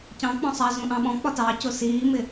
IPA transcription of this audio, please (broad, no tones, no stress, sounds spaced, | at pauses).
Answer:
c ɑ̃ k͡p ɔ̃ sˤ ɑ z ũ ʔ ɑ̃ ɓ ɔ̃ k͡p ɒ t ɑ c ʊ s iː m ɪ